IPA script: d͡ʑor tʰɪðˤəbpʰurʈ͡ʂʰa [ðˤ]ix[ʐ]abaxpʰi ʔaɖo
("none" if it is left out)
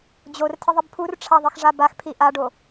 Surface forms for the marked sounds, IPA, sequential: ðˤ, ʐ

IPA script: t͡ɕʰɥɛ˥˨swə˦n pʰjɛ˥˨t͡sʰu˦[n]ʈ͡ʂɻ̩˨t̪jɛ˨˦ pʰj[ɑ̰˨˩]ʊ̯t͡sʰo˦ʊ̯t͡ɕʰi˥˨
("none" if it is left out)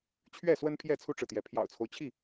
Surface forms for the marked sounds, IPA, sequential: none, ɑ̰˨˩

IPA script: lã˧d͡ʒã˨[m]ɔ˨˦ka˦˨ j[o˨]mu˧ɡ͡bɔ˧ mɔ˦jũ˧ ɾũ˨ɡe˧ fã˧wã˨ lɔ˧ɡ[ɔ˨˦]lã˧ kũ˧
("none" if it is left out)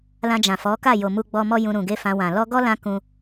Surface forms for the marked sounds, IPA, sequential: f, o˨, ɔ˦

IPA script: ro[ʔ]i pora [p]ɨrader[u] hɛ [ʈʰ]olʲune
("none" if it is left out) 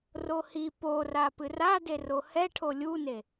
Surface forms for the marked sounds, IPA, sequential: h, p, o, ʈʰ

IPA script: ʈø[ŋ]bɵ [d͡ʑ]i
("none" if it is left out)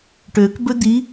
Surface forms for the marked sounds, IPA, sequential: k, d̪

